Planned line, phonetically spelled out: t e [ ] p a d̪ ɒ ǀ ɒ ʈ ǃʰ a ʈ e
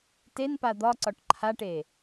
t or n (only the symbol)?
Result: n